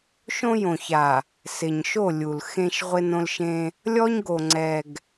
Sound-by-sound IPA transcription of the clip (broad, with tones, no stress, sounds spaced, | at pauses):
ʃ õ˦ j õ˨ ç a˨ | s ɪ˨ ɲ ʃ o˦˨ lʲ u˨ l x ẽ˦ ʃ ʁʷ ɪ˦ n õ˦ l ʃ ẽ˦ | lʲ ɔ˦ ɲ ɡ o˨ ŋ͡ǀ ɛ˨ ɡ